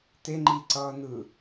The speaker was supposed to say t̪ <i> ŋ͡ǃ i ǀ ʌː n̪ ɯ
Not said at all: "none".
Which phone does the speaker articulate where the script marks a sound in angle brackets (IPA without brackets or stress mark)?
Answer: e